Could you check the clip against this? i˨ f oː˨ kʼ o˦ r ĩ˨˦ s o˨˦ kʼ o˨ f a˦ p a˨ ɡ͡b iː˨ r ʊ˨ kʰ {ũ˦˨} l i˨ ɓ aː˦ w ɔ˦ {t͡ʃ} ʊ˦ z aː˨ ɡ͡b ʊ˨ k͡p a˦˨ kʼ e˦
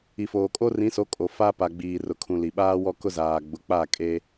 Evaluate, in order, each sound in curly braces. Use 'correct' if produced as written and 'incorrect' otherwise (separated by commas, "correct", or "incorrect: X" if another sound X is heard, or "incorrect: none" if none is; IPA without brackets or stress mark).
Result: incorrect: ũ˨, incorrect: k